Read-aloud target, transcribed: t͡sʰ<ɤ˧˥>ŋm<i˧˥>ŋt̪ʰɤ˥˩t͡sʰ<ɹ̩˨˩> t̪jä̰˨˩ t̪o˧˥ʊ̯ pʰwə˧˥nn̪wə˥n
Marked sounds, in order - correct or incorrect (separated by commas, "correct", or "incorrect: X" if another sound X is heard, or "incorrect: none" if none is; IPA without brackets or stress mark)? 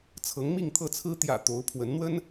correct, incorrect: i˥˧, incorrect: ɹ̩˥